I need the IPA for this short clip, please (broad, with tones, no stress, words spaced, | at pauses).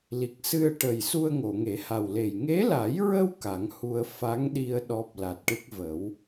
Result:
li˨˩k̚sɨ˧ə̯ʈə˨˩jsu˧ə̯ ŋo˨˩˨ŋe˨˩˦ ha˨˩wle˨˩j ŋe˧˥la˨˩˦jɹə˧w ka˨˩˦ŋhu˧ə̯ fa˧˥ŋɗi˧ə̯ ɗɔ˦˥p̚ la˨˩t̚ʈɨ˦˥k̚ və˨˩˦w